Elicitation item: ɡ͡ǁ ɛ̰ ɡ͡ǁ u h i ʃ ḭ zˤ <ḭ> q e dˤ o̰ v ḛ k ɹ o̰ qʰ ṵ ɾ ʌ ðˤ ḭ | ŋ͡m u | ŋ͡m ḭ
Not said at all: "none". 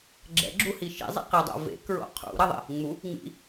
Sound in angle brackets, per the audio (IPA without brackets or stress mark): ḭ